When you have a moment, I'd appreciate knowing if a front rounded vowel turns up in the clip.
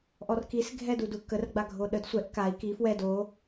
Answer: no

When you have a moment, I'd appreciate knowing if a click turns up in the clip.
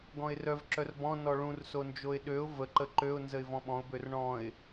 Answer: yes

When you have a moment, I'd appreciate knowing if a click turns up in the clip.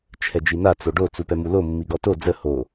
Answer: no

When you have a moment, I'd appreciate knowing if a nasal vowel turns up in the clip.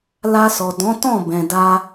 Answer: yes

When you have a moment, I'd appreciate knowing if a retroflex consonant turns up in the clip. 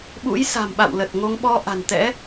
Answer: no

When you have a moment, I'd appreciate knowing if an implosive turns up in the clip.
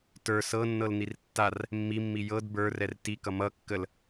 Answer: no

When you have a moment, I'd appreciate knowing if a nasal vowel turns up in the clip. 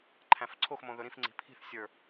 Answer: yes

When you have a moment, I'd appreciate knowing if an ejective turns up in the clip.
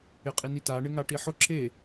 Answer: yes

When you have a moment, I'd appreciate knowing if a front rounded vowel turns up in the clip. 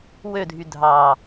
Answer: yes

